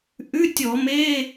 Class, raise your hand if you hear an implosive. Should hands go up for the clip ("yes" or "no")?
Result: no